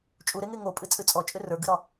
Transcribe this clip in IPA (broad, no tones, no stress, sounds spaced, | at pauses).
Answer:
t͡ʃʼ u ɾ e ŋ e ŋ o pʼ ɨ t͡sʼ ɨ t͡sʼ ɔ t͡ʃʼ ʏ r ə˞ ɡ ɨ ɾ ɒ